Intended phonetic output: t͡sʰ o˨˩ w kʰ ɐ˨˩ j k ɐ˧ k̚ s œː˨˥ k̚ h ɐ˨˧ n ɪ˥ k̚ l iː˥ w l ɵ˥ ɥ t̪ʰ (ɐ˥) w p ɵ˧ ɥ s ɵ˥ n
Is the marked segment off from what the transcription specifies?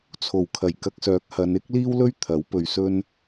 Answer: yes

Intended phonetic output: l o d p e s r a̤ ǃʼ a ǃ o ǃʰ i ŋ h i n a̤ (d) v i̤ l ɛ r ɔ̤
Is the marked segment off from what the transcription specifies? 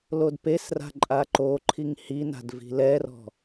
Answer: no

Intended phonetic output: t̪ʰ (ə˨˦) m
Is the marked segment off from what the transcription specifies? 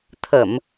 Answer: yes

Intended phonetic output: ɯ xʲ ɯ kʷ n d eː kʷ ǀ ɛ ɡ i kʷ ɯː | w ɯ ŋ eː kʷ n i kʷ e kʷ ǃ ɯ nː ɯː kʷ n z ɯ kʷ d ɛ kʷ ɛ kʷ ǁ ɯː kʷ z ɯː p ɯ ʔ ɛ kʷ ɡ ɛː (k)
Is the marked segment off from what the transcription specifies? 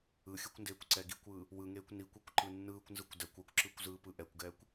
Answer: yes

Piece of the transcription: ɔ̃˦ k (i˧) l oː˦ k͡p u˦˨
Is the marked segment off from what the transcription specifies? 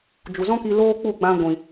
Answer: no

